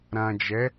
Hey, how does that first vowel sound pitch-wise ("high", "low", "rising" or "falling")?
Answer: low